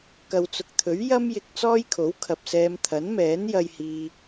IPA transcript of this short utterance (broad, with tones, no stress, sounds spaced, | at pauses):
k ɐ˨ w t͡s ʊ˨ k̚ t̪ʰ ɵ˨˥ ɥ j ɐ˥ m j ɪ˧ k̚ t͡s ɔː˥ j kʰ o˨˥ w kʰ ɐ˨ p̚ s ɛː˧ m t̪ʰ ɐ˨˥ n m ɛː˨˥ n j ɐ˧ j h iː˧